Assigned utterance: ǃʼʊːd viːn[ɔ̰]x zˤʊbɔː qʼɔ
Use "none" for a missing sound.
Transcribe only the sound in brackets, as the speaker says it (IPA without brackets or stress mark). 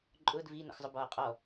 ɔ̰